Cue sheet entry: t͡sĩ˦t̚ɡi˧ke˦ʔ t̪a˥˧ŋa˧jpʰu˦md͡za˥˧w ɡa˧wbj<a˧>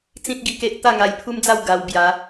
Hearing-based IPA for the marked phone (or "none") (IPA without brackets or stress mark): a˨˦